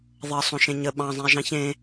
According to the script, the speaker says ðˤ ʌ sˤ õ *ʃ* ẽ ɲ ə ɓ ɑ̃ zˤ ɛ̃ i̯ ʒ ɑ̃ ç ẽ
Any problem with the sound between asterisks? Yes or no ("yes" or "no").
no